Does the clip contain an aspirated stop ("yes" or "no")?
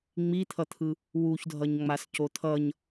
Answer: yes